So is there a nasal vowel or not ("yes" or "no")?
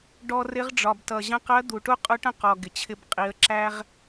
yes